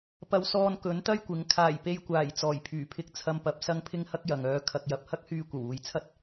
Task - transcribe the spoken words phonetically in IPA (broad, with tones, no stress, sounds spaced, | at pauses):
p ɐ˨˧ w s ɔː˧ n k ɵ˨˥ n t̪ ɐ˥ j kʷ ɪ˨˥ ŋ kʰ aː˨˩ j p e˧ j kʷ aː˨˩ j t͡s ɔː˨˩ j pʰ yː˨˩ pʰ ɪ˧ k̚ t͡sʰ ɐ˧ m p ɐ˨˥ p̚ s ɐ˥ ŋ pʰ ɪ˥ ŋ h ɐ˥ k̚ j ɐ˨ ŋ œː˧ kʰ ɐ˨ k̚ j ɐ˨ p̚ h ɐ˥ k̚ h yː˧ kʷ ɐ˨˩ w uː˨ j t͡sʰ ɐ˥ t̚